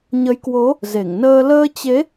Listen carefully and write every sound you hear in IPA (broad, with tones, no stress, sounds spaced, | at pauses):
ɲ ə˨˦ j k w o˨˦ | z e˧˩ ŋ n əː˧ l əː˧ t͡ɕ e˨˦